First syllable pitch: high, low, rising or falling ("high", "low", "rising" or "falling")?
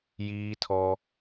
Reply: high